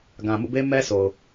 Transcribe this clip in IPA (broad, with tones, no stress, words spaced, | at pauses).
ɡã˨ mṵ˦˨be˦ mɛ˦so˨ʊ̯